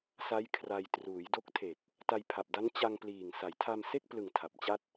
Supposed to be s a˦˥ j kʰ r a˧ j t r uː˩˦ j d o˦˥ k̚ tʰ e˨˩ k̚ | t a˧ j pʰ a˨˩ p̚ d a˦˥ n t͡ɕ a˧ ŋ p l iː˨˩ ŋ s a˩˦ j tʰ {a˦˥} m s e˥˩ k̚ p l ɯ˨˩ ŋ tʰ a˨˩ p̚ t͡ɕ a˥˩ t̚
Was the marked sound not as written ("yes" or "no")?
yes